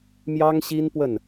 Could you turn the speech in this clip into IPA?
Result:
m j ɑ˥ ŋ ɕ i˥ n p w ə˥˩ n

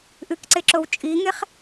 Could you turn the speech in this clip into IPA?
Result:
ʔ ɨ k ǀ e ǁ o w t͡ʃʼ i ŋ e χ

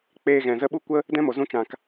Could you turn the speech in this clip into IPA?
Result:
k͡p eː˧ ɣ ɛ̃˨ z ə˧ ɓ u˦ kʷ ə˦ | d ɛ̃˦ m o˨ z ũ˧ t͡ʃ ã˨ k

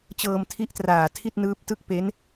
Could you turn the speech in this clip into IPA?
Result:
t͡ɕ ɤː˧ m tʰ i˦˥ ʔ t r aː˨˩ tʰ i˥˩ t̚ n ɯː˦˥ p̚ t ɯ˥˩ k̚ p e˦˥ n

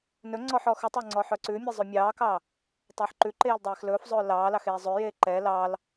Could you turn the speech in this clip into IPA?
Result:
n ɵ ŋ͡ǀ ɔ ħ ɔ x ʉ tˤ o ŋ͡ǀ ɔ ħ œ ǀ ʉ mʲ ɛ zˤ ʉ mʲ ɑː k ɑ | tˤ ɑ ħ ǃ ʉ ǃ eː l dˤ eː x l ɵː f zˤ ɵː l ɑː l ɑ x eː zˤ ø j eː ǃ ɛ l ɑ l

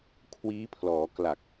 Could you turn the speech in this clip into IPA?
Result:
kʰ w iː˦˥ pʰ l ɔː˩˦ k l a˨˩ k̚

